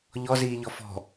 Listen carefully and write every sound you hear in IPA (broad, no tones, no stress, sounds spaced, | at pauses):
ʎ ɔ z iː ʎ ɔ f ɔ̤